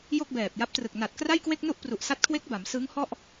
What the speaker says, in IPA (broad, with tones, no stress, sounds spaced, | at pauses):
j o˥˩ k̚ b ɛː˨˩ p̚ j a˦˥ p̚ t r ɯ˨˩ k̚ n a˨˩ t̚ k r a˥˩ j k w e˥˩ k̚ n u˥˩ ʔ p r u˨˩ ʔ s a˦˥ t̚ kʰ w e˦˥ k̚ b a˩˦ m s ɯ˦˥ ŋ h ɔ˥˩ ʔ